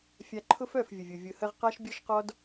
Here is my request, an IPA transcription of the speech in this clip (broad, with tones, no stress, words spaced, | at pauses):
fʲa˧ǃʰʊ˦f œ˦˨fvʲə˨vʲʊ˨ vʲʊ˨hə˧ʁ qa˦ʃbʲɔ˦ʃqɔ˦d